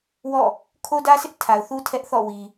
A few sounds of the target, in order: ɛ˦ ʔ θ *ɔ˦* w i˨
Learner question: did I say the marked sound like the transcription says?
no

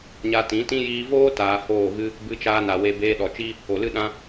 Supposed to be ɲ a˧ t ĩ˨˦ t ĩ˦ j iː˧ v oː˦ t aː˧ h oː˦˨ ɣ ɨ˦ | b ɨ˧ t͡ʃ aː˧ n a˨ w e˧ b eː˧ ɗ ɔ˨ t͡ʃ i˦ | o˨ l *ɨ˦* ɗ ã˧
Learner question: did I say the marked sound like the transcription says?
yes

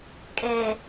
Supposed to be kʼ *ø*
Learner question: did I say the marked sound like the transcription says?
no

